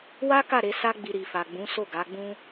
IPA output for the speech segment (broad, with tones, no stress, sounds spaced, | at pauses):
w a˦ k a˦˨ ɾ e˨˦ s a˦ ɡ͡b i˧ ɾ i˨ f a˨ ɡ͡b ũ˨˦ s o˦˨ ɡ a˨˦ ɡ͡b ũ˦